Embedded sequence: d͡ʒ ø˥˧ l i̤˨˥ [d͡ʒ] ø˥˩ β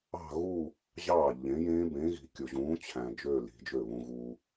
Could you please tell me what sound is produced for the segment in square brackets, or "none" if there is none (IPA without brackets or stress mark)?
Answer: d͡ʒ